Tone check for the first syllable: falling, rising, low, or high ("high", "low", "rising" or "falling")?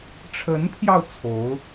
rising